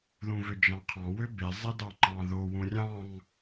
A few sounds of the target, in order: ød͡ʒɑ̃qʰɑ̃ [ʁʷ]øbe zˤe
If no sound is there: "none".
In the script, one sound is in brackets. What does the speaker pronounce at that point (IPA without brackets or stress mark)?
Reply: w